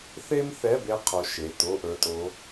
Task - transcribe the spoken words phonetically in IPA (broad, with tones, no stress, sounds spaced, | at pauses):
θ e˥ m θ ɛ˧˥˧ b e˥ qʰ o˨˥ ʃ e˩˧˩ t o˧˥˧ ʔ ə˞˨˥ tʼ o˨˥